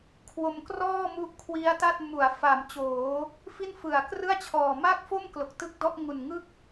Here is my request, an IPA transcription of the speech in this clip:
kʰwo˧mkrɔː˥˩mu˦˥ʔ kʰwi˦˥a̯ta˥˩t̚ mu˩˦a̯ fa˨˩mt͡ɕoː˩˦ | fi˥˩nfɯ˩˦a̯krɯ˥˩a̯t͡ɕʰɔː˨˩ ma˥˩k̚ fo˥˩mklo˨˩k̚ tɯ˦˥k̚dɔ˦˥ʔŋu˨˩nŋɯ˥˩k̚

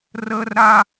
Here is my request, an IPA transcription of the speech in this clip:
rəː˧rɾa˧

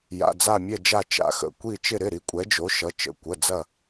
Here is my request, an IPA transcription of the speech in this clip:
ja̰˩˧˩d͡za˧˩mʲɛ˧˩d͡ʒa˧˩ t͡ʃa̰˧˩xə̰˩˧˩ kʷi˧˩t͡ʃɪ˧˩ ɾɪ˩˧˩ɾi˩˧kʷʼɛ˩˧d͡ʒo˩˧ ʃʌ˩˧t͡ʃə̰˩˧˩kʷə˩˧˩d͡zɐ˧˩

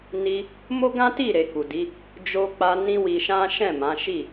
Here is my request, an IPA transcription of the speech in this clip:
ni˧ | mo˦ɡã˦ti˦˨ɾe˨ ku˨di˨˦ | d͡ʒo˧k͡pa˧ nĩ˦wi˧ʃã˦ ʃɛ̃˦˨ mã˨˦ʃi˦˨

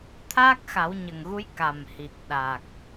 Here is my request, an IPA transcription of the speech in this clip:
t̪ʰa˦˥k̚xa˨˩˦wɲə˨˩ŋɣu˧˥j ka˨˩mhi˨˩k̚ ɗa˨˩k̚

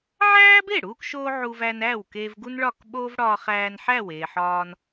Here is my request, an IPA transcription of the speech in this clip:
ʕæː˥be˥˩ ɽuː˥kʃoː˥ ʕu˧væ˧næ˥˩w ke˧vɡu˥nɭɒ˥˩kɓoː˥v ɽɒː˧χæː˧n ħæː˥˩weː˩ ħɒː˧n

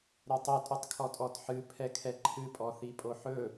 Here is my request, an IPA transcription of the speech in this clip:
ɾɵtˤitʼytˤkʰɔ tʼɔtħɨ pʰɛkʰɛǃʰɨpʼɔ θipʼoħɵ

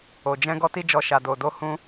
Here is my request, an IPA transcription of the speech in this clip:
o˨d͡ʒɛ̃˧ ɡɔ˧ti˧d͡ʒɔ˨ ʃa˨do˨do˧ hũ˧

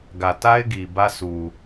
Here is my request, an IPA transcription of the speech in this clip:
ɡä˨ta˦ɪ̯ɡi˨ bä˦ su˨

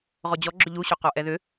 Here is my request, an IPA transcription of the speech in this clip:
ʁod͡ʑɔɡ͡ǁʏ ʎuɕo qɔʔɛðʏ

